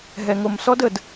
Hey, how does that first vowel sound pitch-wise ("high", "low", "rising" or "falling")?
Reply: low